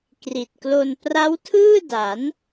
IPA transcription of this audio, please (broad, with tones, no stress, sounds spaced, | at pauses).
k r i˨˩ t̚ k l o˧ n p r a˦˥ w tʰ ɯː˥˩ d a˩˦ n